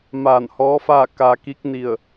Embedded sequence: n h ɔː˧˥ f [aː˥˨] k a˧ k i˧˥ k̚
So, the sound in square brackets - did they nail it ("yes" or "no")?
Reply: yes